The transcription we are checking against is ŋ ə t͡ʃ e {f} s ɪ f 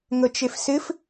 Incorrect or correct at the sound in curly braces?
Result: correct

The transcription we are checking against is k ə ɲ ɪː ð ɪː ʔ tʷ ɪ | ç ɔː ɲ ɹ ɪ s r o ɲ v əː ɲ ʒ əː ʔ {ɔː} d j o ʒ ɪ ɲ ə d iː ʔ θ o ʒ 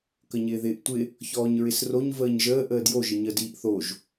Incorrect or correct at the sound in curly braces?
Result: incorrect: əː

